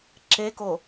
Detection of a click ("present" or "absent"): present